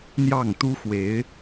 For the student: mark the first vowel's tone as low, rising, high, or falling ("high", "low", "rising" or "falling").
falling